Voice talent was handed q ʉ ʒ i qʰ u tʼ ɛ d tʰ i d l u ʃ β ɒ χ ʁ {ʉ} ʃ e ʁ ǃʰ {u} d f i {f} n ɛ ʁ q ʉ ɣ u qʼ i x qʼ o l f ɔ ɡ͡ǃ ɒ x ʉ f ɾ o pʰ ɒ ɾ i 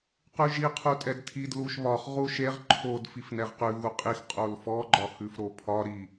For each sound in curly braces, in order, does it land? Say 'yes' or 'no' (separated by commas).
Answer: no, no, yes